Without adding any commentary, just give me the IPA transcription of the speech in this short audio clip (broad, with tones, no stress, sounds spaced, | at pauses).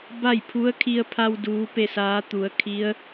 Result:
b a˥˨ j pʰ u˧˥ ə̯ kʰ i˧ ə̯ pʰ a˧ w d uː˧˥ p e˥˨ s aː˧˥ t̪ u˩˧ ə̯ kʰ i˧˥ ə̯